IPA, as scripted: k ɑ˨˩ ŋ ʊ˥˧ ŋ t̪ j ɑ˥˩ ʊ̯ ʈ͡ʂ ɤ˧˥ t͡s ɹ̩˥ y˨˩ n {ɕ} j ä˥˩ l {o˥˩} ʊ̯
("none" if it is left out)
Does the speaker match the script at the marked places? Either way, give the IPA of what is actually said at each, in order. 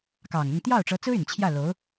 t͡ɕʰ, o˧˥

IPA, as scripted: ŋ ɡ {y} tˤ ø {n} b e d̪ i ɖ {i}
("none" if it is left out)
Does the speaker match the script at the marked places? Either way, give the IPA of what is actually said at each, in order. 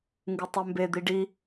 ɨ, m, i

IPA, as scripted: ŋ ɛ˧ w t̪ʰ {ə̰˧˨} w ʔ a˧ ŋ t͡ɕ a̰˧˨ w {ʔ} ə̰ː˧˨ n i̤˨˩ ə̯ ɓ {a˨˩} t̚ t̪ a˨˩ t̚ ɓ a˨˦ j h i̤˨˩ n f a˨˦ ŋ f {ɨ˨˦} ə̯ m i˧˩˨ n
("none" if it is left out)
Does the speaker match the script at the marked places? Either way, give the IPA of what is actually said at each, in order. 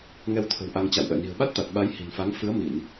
ə̤˨˩, ʔ, a˦˥, ɨ˨˦

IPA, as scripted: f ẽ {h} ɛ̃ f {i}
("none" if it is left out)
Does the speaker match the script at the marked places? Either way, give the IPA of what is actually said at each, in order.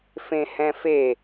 h, e

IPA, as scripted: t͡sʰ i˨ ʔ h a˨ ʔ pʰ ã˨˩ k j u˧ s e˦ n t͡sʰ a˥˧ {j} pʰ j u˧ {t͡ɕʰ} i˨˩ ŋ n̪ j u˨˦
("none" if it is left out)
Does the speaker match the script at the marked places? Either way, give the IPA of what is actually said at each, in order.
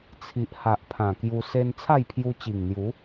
j, t͡ɕ

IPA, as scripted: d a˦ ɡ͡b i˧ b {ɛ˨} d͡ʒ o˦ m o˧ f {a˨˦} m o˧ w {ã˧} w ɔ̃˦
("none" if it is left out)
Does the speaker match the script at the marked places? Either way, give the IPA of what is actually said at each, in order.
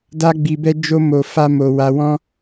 ɛ˦, a˦, a˧

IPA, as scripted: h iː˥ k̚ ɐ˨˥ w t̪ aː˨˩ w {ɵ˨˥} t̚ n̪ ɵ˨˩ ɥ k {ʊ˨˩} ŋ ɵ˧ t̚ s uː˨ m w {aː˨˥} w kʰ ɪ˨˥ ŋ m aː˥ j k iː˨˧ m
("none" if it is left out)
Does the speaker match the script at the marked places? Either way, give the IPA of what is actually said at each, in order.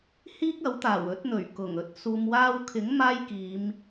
ɵ˨˥, ʊ˨˩, aː˧

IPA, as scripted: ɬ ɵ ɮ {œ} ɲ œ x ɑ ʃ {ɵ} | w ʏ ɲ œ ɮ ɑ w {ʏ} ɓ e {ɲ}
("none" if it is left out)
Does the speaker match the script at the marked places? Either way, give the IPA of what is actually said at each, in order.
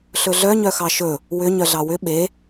œ, ɵ, ʏ, none

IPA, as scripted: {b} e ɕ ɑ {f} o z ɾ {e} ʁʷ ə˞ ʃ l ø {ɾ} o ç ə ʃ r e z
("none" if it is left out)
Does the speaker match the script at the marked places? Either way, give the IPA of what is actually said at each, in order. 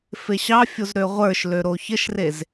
f, fʲ, ø, ɾ

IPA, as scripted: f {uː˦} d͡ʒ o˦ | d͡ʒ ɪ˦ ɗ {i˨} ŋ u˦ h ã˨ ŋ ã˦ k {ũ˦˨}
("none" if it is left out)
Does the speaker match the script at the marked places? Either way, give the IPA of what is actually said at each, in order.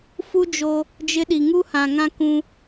u˦, i˨, ũ˦

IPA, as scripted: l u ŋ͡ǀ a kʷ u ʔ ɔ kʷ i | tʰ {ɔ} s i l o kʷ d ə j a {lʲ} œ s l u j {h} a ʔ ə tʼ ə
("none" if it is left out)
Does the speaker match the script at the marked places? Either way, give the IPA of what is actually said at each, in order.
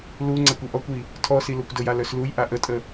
ɔ, l, ʔ

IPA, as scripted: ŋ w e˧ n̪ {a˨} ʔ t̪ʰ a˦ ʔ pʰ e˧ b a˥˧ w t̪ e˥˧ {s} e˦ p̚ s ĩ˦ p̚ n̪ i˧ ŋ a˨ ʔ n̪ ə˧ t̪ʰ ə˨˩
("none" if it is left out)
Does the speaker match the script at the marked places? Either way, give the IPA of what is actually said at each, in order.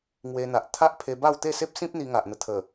a˨, s

